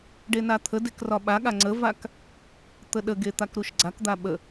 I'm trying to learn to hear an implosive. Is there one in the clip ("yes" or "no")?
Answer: yes